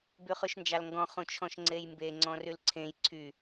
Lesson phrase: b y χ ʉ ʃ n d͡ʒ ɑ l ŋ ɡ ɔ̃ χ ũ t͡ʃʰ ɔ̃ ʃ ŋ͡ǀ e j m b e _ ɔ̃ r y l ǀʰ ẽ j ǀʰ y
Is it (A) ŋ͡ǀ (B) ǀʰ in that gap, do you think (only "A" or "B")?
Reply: A